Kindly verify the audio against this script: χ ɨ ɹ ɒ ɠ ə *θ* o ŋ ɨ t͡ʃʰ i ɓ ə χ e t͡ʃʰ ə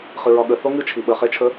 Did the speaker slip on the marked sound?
no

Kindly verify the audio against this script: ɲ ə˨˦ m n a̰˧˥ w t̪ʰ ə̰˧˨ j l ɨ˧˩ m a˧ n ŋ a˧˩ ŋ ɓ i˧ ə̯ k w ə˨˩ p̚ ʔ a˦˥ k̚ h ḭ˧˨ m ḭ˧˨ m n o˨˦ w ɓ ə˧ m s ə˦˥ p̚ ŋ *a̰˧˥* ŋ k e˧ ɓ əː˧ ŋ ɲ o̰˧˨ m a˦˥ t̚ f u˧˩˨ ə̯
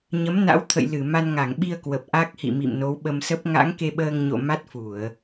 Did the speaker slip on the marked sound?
no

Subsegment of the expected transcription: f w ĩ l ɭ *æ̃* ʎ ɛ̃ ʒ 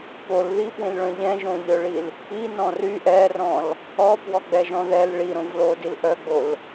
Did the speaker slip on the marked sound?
yes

